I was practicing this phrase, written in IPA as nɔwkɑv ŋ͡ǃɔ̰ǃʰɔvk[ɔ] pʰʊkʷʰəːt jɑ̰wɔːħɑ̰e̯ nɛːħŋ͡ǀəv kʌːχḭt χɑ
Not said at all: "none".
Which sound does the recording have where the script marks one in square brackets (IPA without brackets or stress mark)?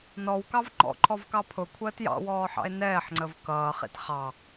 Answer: ɑ